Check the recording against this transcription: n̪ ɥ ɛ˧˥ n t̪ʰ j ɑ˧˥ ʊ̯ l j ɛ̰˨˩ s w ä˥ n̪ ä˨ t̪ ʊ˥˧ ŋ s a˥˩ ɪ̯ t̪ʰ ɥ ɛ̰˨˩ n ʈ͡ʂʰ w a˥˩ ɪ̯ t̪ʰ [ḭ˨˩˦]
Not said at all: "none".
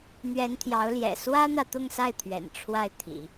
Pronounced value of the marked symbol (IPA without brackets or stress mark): ḭ˨˩˦